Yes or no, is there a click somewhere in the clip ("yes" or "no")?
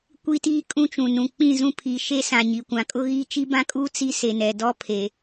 no